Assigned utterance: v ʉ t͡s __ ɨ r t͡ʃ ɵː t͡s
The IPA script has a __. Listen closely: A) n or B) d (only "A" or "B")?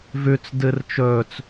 B